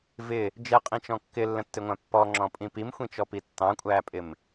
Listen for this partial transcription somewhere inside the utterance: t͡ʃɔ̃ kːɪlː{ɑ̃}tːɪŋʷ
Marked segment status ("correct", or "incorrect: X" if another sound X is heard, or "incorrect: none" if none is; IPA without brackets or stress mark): incorrect: ə̃